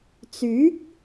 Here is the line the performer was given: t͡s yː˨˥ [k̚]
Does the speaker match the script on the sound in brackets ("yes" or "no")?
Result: yes